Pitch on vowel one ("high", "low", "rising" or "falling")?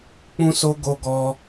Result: high